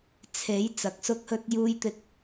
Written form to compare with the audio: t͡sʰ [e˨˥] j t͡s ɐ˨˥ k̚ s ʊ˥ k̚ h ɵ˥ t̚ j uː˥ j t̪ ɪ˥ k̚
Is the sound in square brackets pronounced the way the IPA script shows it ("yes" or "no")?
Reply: yes